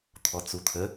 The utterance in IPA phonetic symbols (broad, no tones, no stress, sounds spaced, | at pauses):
t̪ʰ ɔ t͡s u t̪ʰ ə